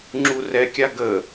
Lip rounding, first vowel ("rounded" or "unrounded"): rounded